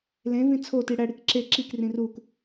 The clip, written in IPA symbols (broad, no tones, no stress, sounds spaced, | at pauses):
l ẽ v ĩ t͡sʰ o t i ɽ æ ɽ i k ǁ e ǁ i k r ĩ r u k